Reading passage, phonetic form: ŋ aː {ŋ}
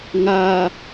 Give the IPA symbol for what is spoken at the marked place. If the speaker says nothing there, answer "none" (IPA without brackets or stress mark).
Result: none